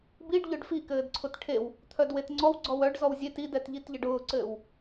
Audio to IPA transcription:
b i ɖ ʎ œ ɖ f i k ɘː d ǀʰ ʊ t ʈʰ e w | t̪ʰ œ d w e t ŋ͡ǀ ɔ w ɡ͡ǀ ɔ w œ ɖ z ɔ w zʲ e t i d ɛ t ʎ i t ʎ ə ɖ ʊː ǀ ɘː w

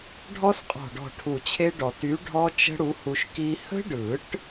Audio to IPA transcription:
ɖʱ ɔ˦˥ s qʼ ɔ̤˧˩ ɖ ɔ̤˧˩ ʈʰ u˧˩ t͡ɕʰ e˦˥ ɖ ɔ˨˩˦ t y˨˥ ɖʱ ɔ˦˥ t͡ʃ ə̤˦˥ ɽ u˨˥ h u˧ ʃ k i˦˥ h ə̤˦˥ ɖ ɯ˨˩˦ ʈ

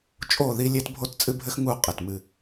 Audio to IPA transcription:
t͡ʃʼ o˦˨ ð i˦ lʲ e˦ t bʱ o˦ t t͡sʼ ɨ˦ bʱ ɘ˦ x ŋ u˦˨ qʼ e˨ t m ɨ˦˨

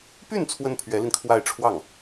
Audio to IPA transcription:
p y˥˩ n t͡sʰ w ə˥ n pʰ ɥ ɛ˧˥ l i˧ n kʰ w a˥˧ ɪ̯ ʈ͡ʂʰ w ɑ˥˩ ŋ

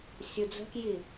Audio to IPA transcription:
sʲ u d͡z ə̤ k j i

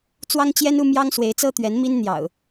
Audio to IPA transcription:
t͡s w ɑ˦ ŋ t͡ɕ j ɛ˦ n u˦ m j ɑ˦ ŋ s w e˨˦ ɪ̯ t͡s ɤ˦ t̪ ɥ ɛ˨˦ n m i˦ n n̪ j ɑ̰˨˩ ʊ̯

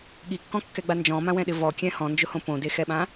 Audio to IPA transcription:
ɠ i kː ɔ̃ kː ɛ ɡ͡b a n d͡ʒ ɔ̃ m ã w ɛ̃ ɗ ɪ v ɔ kʲ ɛ̃ h ɔ̃ n d͡ʒ ʊ h õ p õ d e x ɛ ɓ ã

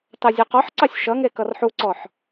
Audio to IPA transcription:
t ɑ zʲ e q ɔ ħ ǀ ɑ sʲ ʃ ʌ ŋ e k ʌ r ħ u ǀ ɔ ħ

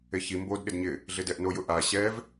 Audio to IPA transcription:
e ç i m b o d ɗ ɪ d ɲ ɪ | ɮ ɪ d ɛ ʔ n o j ʊ ʔ a ɕ ɛ v

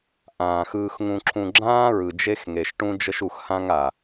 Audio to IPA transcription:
ʔ ãː˨ x ɯː˨ x ŋ ũ˨ ǁʰ ũ˨ ɡ͡ǁ ãː˦ ɹ ɯ˨ d͡ʒ e˦ x ŋ e˨ ʃ ʈ ũ˦ d͡ʒ ə˦ ʃ u˨ x h ã˦ ŋ a˨

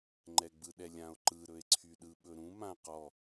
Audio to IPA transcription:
ŋ͡ǃ ɛ ɡ͡b ɯ ɗ ɛ lʲ ã o̯ ǃ ɯ ɾ ɵ e̯ ǀʰ y ɗ ɯ ɓ ɵ ɾ ũ m ã q ɔ

